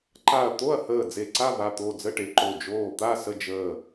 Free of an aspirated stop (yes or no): yes